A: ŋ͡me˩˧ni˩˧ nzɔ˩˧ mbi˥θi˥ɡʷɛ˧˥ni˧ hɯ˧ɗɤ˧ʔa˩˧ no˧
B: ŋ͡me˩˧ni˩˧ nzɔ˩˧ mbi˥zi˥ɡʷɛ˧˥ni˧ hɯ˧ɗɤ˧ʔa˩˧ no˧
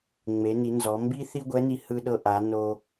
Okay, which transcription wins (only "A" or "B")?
A